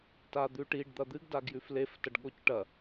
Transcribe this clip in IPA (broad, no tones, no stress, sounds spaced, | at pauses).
t a d̪ ʉ ʈ i ɖ d̪ ɐ d̪ ɨ ɡ d a ɡ j ʉ f l e f t ɐ ɖ ɠ o c ʈ ɐ